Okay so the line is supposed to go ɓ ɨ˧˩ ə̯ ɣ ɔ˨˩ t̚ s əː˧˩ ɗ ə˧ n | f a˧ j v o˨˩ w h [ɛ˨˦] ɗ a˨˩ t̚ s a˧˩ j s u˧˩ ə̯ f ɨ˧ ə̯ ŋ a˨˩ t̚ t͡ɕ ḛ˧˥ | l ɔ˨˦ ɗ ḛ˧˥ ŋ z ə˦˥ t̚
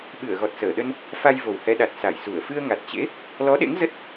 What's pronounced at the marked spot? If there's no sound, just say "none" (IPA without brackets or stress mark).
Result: ɛ˨˦